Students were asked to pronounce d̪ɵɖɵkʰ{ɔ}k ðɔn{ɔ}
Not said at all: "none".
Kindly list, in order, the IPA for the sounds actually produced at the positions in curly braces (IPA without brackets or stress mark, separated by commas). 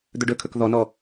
ɵ, ɔ